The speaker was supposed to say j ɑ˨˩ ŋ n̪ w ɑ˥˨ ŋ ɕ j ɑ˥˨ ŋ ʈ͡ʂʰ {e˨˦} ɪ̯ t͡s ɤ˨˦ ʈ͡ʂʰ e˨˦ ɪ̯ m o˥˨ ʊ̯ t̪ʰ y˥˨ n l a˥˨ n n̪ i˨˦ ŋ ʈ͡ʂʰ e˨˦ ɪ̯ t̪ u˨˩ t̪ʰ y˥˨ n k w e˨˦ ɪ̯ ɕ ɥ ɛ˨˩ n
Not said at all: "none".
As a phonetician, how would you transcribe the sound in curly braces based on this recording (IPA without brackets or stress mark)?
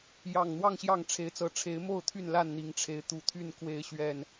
e˨˦